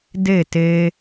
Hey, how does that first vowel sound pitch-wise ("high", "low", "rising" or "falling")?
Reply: falling